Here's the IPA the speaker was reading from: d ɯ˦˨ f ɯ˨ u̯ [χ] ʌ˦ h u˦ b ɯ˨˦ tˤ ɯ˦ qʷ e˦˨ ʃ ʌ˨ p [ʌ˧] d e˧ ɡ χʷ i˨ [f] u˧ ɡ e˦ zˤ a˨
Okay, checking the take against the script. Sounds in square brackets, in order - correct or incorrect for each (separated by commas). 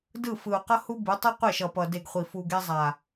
incorrect, incorrect, correct